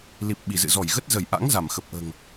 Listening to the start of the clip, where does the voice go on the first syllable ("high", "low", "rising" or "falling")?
low